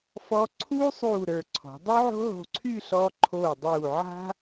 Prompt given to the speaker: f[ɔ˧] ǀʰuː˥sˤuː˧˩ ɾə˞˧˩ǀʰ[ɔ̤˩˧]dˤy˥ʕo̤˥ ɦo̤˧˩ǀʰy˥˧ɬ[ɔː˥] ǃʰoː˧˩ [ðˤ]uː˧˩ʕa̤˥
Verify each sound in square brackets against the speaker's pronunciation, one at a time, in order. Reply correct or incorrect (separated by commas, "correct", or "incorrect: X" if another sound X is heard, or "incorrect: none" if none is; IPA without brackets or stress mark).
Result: correct, correct, incorrect: ɔː˧, incorrect: dˤ